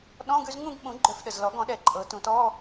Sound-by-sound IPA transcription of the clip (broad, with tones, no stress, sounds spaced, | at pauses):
ɗ ɔ̃˧˥˧ ɡ ʉ˥˧ z ŋ ũ˥˧ ɡ ɓ ũ˨˩˦ ɡ͡ǃ œ˨˩ f ɗ ə˨˩ z l ɔ˨˩˦ ɡ ɔ̃˨˩˦ ɗ ɛ˨˩ ǃʼ ɤ˨˩˦ t ũ˨˩˦ t ɔ˧˥˧